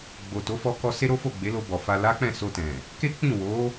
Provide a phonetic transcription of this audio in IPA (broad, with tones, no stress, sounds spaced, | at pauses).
ɡ͡b o˨ t o˨˦ f ɔ˧ k ɔ˧ s e˦ ɾ o˦ f o˦˨ ɡ͡b e˨˦ l o˧ b ɔ˨ f a˧ l a˦ k͡p ɛ̃˦˨ s o˧ t ɛ̃˨ | k e˦ k͡p ĩ˦˨ w o˨˦